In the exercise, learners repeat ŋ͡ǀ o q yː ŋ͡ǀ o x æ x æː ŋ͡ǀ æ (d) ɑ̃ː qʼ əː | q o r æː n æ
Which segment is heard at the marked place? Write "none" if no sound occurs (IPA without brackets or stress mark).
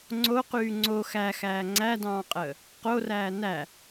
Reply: d